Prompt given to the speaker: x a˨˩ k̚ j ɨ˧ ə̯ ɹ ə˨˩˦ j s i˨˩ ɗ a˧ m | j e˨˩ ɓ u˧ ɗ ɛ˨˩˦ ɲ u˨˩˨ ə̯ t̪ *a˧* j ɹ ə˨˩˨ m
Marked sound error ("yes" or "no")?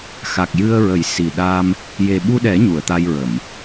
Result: no